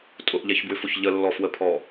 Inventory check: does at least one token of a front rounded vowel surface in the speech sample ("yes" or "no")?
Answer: yes